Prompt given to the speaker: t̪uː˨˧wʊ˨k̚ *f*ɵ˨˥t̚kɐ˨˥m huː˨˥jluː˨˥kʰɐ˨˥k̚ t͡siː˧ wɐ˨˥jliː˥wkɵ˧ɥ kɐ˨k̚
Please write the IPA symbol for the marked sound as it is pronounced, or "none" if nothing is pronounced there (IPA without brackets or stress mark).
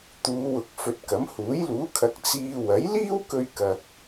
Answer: f